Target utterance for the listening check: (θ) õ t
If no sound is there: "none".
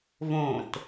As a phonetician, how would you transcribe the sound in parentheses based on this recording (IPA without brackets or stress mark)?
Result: v